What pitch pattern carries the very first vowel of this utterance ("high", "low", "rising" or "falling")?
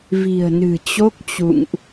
low